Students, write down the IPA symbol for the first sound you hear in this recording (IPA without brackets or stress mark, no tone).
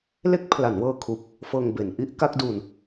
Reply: l